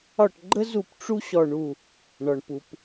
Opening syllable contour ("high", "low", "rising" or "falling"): falling